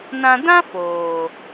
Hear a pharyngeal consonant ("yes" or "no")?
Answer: no